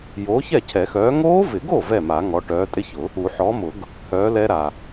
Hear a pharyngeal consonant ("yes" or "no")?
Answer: yes